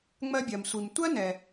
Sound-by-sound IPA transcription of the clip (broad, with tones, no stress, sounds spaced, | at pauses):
ŋ͡m ɜ˧ bʲ ɜ˩ m sʷ i˩ m tʷ ɜ˥ n ɛ˩